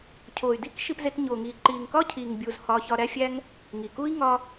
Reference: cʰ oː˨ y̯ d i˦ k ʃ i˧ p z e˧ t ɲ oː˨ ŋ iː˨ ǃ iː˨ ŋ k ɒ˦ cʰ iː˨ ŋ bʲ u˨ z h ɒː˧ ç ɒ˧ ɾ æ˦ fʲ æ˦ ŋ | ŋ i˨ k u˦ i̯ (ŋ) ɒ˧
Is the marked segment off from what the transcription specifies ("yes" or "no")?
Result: no